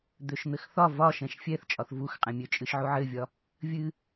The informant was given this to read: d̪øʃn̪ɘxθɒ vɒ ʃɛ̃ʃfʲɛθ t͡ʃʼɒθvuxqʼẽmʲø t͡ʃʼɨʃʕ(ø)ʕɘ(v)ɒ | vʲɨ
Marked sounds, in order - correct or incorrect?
incorrect: u, incorrect: vʲ

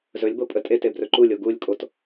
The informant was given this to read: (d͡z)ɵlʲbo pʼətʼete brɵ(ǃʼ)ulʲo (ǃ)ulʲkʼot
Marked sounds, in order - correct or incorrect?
incorrect: z, incorrect: ǃ, incorrect: ɡ

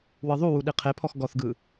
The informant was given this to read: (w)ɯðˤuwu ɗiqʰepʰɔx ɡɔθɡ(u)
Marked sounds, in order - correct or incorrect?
correct, incorrect: ɯ

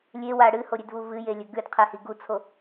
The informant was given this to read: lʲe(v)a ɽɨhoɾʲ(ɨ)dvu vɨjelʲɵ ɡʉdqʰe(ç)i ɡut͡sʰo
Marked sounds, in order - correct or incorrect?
incorrect: w, incorrect: ʉ, incorrect: h

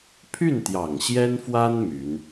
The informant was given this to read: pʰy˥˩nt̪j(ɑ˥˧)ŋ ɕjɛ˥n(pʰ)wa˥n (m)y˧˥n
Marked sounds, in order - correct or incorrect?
incorrect: ɑ˨˩, incorrect: f, correct

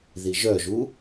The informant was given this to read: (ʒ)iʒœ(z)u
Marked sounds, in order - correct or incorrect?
incorrect: ð, incorrect: ʒ

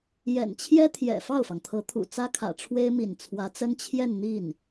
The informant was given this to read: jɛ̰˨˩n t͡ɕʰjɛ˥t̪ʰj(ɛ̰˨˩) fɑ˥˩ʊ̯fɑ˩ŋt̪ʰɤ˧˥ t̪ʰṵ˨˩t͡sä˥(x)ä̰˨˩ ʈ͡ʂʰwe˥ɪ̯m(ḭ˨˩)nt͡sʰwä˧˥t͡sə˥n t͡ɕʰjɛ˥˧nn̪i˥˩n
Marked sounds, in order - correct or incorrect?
correct, incorrect: kʰ, correct

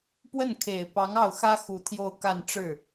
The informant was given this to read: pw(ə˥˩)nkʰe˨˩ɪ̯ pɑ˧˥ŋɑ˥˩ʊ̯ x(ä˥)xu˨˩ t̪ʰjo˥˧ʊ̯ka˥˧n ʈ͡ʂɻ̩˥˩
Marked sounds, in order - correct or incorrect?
correct, correct

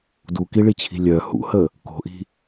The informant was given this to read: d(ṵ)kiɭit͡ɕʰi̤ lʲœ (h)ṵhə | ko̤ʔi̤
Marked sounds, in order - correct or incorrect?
incorrect: u, correct

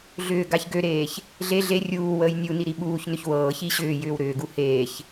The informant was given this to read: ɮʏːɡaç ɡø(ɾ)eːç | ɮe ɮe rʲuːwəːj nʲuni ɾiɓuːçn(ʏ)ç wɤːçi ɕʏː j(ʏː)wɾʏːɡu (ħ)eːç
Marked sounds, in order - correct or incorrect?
correct, correct, correct, incorrect: h

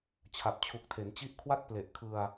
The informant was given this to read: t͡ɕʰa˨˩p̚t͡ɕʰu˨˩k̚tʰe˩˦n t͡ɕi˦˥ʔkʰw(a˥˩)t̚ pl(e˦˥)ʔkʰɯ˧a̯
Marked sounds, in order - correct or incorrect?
correct, incorrect: e˨˩

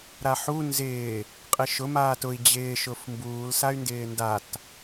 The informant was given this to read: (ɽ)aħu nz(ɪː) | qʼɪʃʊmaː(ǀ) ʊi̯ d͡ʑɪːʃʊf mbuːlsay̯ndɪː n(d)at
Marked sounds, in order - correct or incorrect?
incorrect: ɾ, correct, incorrect: t, correct

